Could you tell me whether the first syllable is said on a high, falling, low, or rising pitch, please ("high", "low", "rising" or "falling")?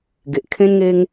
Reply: low